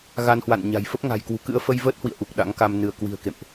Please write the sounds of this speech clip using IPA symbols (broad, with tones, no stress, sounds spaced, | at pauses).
ɣ a˧ n h w a̰˧˨ n ɲ a̤˨˩ j f ə˦˥ p̚ ŋ a̤˨˩ j k w ṳ˨˩ k ɨ̰˧˥ ə̯ f ə˧ j v əː˦˥ t̚ h w ḭ˧˨ ə̯ ʔ u˨˩ k̚ ɗ a̰˧˥ ŋ k a˧ m n ɨ˧˩ ə̯ k w i̤˨˩ ə̯ k ḛ˧˨ m ʔ